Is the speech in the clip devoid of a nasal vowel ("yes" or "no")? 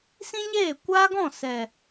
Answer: no